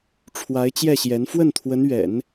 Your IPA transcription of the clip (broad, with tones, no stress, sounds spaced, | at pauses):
ʈ͡ʂʰ w a˧˥ ɪ̯ t͡ɕ j ɛ˥˩ ɕ j ɛ˧˥ n f w ə˥˩ n t̪ʰ w ə˧˥ n ɥ ɛ̰˨˩˦ n